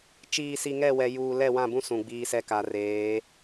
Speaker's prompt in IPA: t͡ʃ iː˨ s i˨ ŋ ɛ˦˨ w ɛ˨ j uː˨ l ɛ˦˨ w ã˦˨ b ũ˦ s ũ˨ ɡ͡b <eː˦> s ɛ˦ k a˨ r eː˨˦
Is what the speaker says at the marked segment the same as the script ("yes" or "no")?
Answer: no